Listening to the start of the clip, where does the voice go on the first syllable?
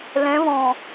rising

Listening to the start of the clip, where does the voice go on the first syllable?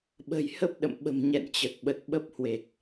low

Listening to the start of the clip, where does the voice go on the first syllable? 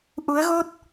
rising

